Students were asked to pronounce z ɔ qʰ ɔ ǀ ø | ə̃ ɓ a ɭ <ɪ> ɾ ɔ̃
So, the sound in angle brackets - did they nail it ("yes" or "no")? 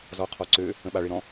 yes